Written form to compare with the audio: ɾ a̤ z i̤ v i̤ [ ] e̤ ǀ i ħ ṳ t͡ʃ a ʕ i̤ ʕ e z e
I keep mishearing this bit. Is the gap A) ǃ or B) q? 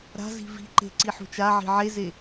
A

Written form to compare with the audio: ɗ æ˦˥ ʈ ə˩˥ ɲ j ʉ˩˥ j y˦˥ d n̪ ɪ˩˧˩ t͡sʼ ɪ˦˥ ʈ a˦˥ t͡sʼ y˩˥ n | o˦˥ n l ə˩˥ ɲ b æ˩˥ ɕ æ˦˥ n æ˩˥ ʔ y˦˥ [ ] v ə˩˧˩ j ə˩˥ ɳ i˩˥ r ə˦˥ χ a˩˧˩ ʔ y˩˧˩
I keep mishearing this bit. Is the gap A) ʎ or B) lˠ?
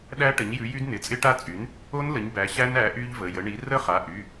A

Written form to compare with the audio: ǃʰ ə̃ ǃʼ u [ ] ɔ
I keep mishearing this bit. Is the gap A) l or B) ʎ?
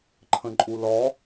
A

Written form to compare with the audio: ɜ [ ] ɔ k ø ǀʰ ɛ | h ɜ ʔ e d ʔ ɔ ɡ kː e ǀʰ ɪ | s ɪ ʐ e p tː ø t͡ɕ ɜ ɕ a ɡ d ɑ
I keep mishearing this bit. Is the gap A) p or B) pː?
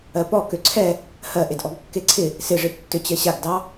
A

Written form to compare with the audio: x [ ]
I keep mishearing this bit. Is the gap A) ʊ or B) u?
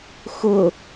A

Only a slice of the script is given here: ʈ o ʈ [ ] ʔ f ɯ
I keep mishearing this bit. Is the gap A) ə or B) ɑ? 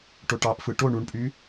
B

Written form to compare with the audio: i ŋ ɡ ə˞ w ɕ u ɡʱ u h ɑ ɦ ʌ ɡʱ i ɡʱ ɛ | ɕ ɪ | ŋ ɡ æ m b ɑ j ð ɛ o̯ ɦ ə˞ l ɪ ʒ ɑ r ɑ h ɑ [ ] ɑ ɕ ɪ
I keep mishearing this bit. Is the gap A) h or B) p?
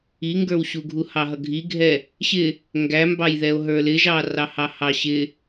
A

